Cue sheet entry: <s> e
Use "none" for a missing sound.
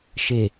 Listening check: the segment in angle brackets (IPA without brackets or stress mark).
ʃ